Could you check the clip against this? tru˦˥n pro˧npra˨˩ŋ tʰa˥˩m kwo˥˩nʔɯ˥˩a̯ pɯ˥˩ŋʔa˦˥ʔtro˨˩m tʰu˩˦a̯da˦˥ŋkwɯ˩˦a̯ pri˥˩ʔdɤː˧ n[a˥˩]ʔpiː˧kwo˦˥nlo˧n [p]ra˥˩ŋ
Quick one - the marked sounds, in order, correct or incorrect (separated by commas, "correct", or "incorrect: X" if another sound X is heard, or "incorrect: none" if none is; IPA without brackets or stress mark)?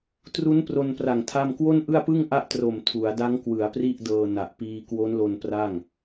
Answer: incorrect: a˨˩, correct